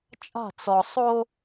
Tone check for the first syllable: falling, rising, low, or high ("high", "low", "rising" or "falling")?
falling